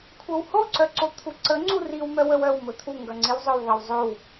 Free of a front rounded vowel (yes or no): no